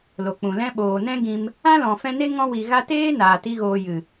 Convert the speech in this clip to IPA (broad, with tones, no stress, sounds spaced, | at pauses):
l o˨ k͡p ũ˨ l ɛ̃˦ ɓ oː˨ n ɛ̃˦ ɡ ĩ˧ m | ã˦ l ɔ̃˨ f ɛ̃˧ n e˦ ŋ ɔ̃˧ w i˨ ɣ a˧ t eː˦ n aː˨ t i˧ ɣ oː˨ j ɨ˨